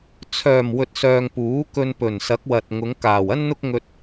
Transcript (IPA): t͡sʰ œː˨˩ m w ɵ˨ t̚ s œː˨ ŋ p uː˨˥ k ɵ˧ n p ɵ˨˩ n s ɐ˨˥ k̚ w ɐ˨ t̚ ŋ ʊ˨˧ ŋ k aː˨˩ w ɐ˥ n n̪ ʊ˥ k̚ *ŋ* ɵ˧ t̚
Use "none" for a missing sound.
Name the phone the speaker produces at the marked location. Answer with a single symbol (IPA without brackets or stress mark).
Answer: ŋ